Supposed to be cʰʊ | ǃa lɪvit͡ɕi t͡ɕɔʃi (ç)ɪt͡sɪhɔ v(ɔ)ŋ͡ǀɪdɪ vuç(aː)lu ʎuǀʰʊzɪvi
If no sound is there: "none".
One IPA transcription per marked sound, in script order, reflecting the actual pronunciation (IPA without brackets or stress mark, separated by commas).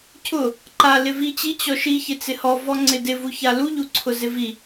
ç, ɔ, a